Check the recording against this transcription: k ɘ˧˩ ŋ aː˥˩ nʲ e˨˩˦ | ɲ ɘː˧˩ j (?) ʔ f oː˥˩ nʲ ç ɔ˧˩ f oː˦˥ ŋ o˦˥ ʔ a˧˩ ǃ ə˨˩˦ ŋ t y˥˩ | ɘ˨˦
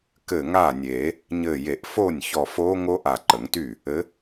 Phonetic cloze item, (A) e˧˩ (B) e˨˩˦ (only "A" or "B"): B